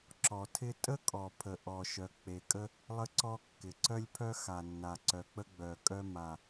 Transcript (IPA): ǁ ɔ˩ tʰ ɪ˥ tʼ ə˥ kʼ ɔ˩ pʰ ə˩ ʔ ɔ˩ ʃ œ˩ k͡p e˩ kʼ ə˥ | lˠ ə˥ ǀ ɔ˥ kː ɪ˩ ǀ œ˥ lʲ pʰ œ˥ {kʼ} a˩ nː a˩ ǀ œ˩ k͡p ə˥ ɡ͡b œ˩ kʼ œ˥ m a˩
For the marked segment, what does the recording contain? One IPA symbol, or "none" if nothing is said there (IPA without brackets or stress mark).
x